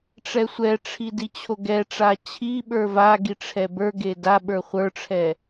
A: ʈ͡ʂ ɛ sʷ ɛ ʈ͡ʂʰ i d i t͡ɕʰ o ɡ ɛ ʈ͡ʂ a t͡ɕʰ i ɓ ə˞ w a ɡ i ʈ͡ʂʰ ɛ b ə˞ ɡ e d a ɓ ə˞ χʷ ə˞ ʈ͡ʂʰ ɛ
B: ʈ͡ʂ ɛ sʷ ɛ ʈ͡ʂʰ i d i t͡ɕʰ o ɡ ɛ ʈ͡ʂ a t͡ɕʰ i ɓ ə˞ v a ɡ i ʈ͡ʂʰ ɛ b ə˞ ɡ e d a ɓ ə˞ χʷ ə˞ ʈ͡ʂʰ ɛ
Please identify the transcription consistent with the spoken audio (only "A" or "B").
B